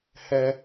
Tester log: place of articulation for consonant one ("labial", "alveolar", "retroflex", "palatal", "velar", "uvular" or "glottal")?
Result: glottal